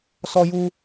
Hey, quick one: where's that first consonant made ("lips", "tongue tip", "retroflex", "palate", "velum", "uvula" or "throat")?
tongue tip